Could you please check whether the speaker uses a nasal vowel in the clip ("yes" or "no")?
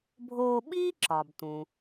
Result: yes